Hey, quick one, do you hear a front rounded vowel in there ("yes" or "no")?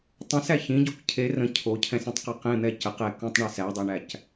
no